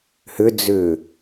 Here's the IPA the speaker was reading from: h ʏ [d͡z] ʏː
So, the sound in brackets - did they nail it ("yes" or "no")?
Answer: yes